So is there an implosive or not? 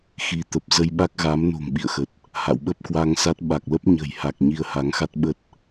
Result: yes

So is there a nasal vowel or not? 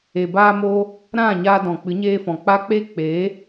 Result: yes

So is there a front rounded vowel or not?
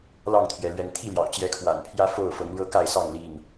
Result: no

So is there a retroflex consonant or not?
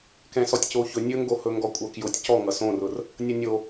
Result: no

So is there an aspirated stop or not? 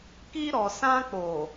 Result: no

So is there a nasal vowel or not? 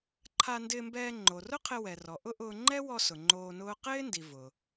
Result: no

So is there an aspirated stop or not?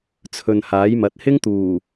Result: yes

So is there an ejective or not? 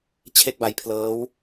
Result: no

